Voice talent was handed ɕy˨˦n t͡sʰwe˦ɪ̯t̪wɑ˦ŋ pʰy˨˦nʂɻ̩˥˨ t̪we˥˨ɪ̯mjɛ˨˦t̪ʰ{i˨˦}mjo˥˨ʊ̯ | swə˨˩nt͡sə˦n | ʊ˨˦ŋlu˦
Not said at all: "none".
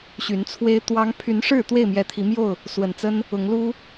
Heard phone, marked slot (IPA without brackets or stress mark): i˨˦